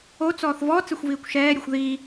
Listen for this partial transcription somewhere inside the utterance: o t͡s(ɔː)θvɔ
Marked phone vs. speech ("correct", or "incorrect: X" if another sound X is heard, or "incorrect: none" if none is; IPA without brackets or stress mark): correct